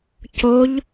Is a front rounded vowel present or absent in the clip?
absent